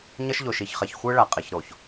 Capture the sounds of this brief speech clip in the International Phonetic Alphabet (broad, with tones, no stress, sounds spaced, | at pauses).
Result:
ɲ ʌ˦ ʃ ʎ o˨ ʃ i˨ ç χ ɛ˨ ç xʷ ɯ˦ ɭ a˨ qʼ e˨ ç ɾ o˨ ç